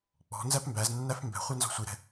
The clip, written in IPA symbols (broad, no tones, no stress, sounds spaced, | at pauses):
k͡p ɔ̤ n z æ p m b æ z nː æ f m b ɛ̤ χʷ ɛ n z ɔ̤ sʷ i ɾ ɛ̤